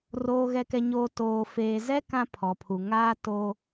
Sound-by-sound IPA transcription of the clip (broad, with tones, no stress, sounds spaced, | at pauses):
r oː˨ ɣ ɛ˨ k ɛ˨ ɲ oː˨ t oː˨ f eː˨ z ɛ˦ k ã˦ pʰ ɔ˨ pʰ u˨ ŋ aː˦ t oː˦